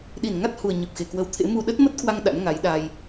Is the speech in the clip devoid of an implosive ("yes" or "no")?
no